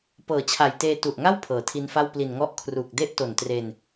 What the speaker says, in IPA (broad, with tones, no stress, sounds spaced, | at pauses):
p ɤː˨˩ t͡ɕʰ a˨˩ j t eː˧ t u˨˩ ʔ ŋ a˥˩ w pʰ ɤː˩˦ tʰ i˧ n f a˥˩ w p l i˨˩ n ŋ ɔ˥˩ ʔ kʰ r uː˨˩ k̚ d e˥˩ ʔ t o˨˩ n t r e˧ n